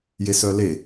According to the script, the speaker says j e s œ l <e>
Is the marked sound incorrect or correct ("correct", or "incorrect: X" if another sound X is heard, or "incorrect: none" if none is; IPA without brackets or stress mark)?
correct